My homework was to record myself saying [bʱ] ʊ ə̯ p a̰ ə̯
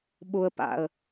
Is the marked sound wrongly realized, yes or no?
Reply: yes